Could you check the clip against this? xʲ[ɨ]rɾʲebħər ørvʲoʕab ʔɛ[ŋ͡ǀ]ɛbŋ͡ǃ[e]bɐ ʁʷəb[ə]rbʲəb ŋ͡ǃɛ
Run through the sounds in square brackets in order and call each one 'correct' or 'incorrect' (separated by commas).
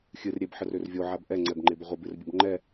correct, correct, correct, incorrect